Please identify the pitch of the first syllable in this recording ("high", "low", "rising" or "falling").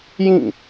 falling